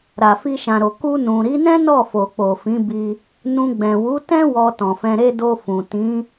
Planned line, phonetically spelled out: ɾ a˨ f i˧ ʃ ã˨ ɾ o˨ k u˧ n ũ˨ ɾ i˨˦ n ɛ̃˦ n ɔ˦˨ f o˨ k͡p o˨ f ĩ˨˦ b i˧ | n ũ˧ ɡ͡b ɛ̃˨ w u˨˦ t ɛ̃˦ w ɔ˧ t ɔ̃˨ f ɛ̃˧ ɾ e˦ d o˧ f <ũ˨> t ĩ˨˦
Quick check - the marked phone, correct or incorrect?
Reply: correct